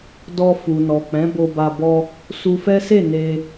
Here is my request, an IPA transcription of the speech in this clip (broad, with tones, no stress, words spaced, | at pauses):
dɔ˧fu˨nɔ˨ k͡pɛ̃˨˦bo˧ba˧ bɔ˧ | su˧fɛ˦se˦˨ ne˧